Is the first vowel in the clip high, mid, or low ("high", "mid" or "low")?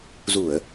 high